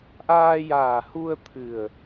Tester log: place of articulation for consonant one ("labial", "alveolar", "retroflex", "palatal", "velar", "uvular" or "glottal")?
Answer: glottal